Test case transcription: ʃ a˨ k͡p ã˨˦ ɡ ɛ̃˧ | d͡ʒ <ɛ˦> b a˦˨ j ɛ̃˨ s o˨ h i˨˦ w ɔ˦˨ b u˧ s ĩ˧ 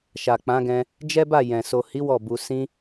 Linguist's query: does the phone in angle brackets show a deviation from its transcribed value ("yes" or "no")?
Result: no